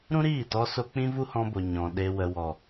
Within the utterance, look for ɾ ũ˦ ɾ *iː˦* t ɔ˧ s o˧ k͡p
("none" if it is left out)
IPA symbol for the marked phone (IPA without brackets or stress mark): iː˦˨